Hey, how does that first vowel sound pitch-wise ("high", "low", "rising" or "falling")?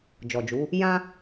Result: low